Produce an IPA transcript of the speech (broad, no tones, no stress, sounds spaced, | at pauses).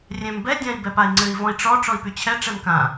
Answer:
rʲ ɛ̃ m b ɛ dʲ ã i̯ b ɛ p a i̯ ŋ͡ǀ ɘ i̯ v ɔ̃ i̯ ʈ͡ʂ ɔ ʈ͡ʂ ɔ i̯ p y t͡ɕʰ ɛ ʈ͡ʂ ɛ m k ã